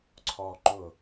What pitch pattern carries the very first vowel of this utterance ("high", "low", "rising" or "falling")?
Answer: high